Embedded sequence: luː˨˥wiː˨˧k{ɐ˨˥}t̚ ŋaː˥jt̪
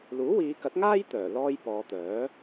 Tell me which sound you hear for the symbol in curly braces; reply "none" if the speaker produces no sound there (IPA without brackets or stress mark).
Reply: ɐ˨˥